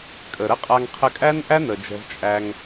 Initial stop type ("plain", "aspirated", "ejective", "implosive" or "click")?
ejective